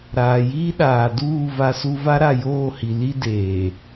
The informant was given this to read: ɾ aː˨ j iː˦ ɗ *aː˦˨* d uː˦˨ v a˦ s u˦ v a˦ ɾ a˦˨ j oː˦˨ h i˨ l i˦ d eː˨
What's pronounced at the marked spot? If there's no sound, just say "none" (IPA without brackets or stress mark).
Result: aː˨